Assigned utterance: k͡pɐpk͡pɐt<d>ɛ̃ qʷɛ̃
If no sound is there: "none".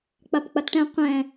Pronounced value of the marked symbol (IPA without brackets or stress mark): ʈ